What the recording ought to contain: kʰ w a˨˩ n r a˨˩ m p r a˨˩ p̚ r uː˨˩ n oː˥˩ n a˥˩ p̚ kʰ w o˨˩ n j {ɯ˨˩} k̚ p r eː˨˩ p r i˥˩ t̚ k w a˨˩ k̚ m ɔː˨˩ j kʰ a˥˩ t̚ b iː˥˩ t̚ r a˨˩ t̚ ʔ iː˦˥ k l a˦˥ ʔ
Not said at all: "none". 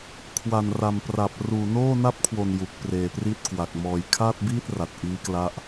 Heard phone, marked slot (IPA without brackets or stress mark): u˨˩